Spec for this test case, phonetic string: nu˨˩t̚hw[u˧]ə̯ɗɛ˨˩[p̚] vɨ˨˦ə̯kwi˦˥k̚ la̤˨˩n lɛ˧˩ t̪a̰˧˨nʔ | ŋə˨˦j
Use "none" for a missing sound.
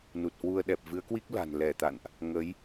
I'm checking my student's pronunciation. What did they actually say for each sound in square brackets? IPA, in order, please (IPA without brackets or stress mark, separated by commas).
u˧, p̚